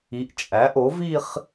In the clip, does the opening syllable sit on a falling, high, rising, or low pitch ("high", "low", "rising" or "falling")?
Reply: rising